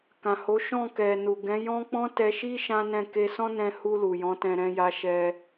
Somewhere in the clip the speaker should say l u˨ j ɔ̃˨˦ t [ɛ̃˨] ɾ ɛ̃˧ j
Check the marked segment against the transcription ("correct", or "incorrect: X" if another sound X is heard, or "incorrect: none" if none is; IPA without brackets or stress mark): incorrect: ɛ̃˧